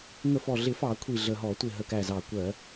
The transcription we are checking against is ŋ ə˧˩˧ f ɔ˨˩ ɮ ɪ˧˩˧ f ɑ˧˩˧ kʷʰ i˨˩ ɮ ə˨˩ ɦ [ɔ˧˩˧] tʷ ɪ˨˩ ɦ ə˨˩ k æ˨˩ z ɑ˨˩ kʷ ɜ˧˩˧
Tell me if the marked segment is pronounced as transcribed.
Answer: yes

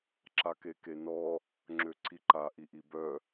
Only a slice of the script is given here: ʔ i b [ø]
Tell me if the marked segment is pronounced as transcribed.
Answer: no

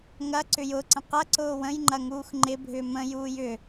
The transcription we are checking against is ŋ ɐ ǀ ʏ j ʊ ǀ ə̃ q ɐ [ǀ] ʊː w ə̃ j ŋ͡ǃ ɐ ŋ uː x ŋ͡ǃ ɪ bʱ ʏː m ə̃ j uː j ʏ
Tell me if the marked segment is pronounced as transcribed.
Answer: yes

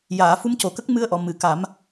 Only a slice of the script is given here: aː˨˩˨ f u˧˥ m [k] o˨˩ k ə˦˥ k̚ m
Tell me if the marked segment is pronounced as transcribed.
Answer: no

